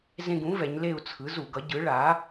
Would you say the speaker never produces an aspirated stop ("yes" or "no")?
no